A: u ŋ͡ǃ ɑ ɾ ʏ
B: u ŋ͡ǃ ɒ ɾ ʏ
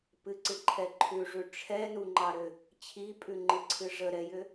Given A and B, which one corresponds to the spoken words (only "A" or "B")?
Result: A